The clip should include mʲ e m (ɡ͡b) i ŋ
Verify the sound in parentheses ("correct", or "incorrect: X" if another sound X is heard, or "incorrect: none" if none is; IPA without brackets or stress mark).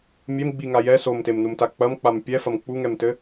correct